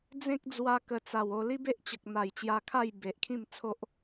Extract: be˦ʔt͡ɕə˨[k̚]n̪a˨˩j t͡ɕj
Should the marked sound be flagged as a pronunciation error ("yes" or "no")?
no